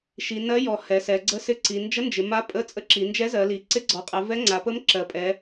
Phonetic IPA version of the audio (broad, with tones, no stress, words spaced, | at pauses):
ʃi˩˧nɜ˧˥jɔ˩˧ hɛ˩˧ sɛ˩˧ɡ͡ǀə˧˥sɪ˧˥ǀi˩˧ nd͡ʒə˧˥ nd͡ʒɪ˩˧ma˧˥pʼə˧˥ t͡sʼə˧˥ǁi˩˧nd͡ʒɛ˧˥ zɜ˩˧li˩˧ ǀɪ˧˥ɡ͡ǀɔ˩˧qʼɛ˩˧ vɛ˧˥ŋ͡ǀa˩˧pə˧˥m ǁɜ˩˧pʼɛ˩˧